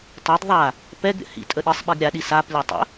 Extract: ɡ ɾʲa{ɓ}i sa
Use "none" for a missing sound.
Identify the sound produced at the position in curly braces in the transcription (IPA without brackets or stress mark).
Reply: ɗ